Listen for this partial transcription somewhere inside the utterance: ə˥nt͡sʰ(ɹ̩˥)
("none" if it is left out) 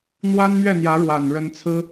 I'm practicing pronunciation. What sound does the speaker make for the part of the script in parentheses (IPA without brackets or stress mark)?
ɹ̩˥